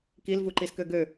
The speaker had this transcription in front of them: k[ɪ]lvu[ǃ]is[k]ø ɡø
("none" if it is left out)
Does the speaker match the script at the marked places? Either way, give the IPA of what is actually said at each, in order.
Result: i, ǃ, k

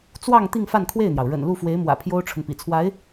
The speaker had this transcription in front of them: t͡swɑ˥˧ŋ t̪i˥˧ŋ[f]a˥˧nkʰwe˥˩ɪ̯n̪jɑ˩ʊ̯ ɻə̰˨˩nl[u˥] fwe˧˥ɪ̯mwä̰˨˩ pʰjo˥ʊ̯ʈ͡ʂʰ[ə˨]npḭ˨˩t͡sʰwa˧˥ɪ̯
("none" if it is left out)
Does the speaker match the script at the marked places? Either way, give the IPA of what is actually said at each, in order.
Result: f, u˥˩, ə˨

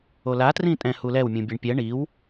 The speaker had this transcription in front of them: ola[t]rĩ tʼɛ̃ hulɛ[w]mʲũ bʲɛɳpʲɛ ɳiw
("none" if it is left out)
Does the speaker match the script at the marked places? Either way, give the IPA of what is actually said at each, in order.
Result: t, w

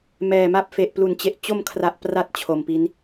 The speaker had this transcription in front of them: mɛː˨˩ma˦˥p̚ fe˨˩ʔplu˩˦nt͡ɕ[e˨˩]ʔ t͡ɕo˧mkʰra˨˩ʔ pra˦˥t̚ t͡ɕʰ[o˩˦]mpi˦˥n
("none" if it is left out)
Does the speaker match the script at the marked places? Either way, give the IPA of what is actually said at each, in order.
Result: e˨˩, o˨˩

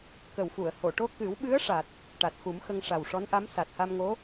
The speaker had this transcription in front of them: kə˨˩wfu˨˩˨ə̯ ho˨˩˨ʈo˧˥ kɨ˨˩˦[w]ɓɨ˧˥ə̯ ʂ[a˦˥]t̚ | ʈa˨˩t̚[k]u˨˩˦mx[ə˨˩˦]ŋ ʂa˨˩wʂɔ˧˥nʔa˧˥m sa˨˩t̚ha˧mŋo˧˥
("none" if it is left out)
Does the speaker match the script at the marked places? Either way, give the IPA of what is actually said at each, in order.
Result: w, a˨˩, x, ə˧

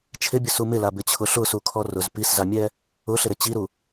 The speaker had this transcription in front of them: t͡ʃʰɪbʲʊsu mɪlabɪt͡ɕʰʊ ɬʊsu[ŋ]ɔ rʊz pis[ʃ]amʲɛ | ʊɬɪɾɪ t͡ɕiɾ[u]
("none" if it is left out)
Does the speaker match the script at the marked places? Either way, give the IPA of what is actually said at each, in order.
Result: kʰ, z, u

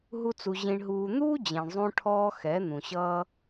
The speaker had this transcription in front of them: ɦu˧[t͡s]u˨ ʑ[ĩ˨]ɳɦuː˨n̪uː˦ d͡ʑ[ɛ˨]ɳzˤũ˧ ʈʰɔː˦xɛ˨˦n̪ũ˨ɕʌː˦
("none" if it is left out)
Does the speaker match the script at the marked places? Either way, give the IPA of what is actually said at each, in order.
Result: t͡s, ĩ˨, ɛ̃˨

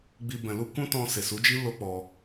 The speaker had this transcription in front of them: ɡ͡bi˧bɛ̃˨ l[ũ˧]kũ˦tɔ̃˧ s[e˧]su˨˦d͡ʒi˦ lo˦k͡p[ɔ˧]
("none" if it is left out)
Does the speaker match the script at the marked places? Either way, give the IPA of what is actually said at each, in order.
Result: u˧, e˨, ɔ˧

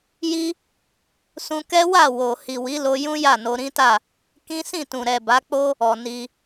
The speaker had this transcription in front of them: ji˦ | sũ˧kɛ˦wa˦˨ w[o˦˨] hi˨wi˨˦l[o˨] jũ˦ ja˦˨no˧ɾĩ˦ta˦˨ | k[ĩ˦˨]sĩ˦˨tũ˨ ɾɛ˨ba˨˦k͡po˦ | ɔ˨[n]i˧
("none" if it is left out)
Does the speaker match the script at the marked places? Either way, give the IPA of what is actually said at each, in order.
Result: o˨, o˧, ĩ˦, n

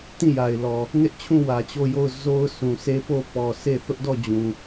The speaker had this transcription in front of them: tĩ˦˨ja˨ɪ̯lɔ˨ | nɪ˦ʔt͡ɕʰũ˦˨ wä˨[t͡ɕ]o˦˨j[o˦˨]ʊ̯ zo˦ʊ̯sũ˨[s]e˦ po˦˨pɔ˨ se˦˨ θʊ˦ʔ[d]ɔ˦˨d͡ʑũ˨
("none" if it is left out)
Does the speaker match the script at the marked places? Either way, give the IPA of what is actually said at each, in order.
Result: t͡ɕ, o˦˨, s, d

